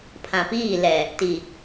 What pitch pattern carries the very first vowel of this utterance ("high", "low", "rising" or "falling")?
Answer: low